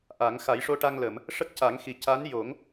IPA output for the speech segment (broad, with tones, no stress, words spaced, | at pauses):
ʔa˨˩˦ŋ xa˨˩˦jʂo˧ʈa˧ŋlə˨˩˨m | ʂə˦˥k̚ca˨˩˦ŋxi˨˩ ca˧˥n jo˨˩˦ŋ